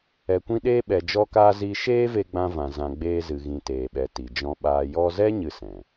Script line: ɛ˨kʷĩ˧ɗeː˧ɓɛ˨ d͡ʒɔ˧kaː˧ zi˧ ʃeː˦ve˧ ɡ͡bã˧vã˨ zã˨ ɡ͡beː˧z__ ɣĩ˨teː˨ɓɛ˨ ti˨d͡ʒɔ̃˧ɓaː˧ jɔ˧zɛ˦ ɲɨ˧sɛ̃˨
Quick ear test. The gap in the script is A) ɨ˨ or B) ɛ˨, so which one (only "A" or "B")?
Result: A